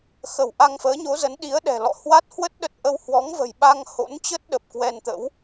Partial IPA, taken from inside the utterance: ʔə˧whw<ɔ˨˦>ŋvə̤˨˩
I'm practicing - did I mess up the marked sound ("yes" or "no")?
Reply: no